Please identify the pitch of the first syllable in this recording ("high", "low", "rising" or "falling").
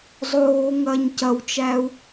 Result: low